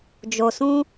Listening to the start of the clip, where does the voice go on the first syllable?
low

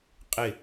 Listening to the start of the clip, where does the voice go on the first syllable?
falling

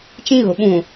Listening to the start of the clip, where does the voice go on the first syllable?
high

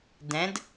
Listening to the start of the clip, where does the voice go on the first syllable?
rising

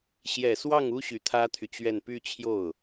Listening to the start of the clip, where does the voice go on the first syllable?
low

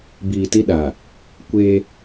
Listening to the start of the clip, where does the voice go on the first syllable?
low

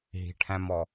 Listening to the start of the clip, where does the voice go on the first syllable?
low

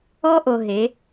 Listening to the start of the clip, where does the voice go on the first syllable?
high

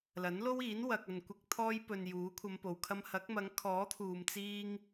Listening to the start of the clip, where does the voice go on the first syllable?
rising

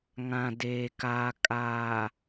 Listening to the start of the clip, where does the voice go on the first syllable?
low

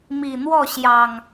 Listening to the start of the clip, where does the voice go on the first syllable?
low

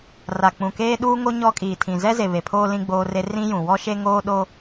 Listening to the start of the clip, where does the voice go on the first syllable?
low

